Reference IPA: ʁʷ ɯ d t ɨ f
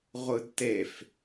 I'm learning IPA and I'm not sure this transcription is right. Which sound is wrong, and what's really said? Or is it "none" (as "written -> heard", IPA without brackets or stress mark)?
ɨ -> e